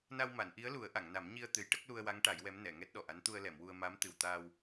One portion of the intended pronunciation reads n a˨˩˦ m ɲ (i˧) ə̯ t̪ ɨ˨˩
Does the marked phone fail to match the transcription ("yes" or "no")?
no